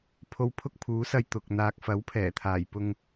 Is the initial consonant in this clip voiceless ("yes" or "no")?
yes